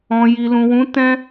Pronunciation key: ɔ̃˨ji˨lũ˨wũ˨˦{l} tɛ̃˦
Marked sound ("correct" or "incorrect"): incorrect